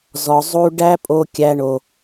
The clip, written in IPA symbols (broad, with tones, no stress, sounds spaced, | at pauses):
z ɔ˨ zˤ u˦ ɖ æ˦ pʼ o˦ kʲ æ˦ ɳ o˦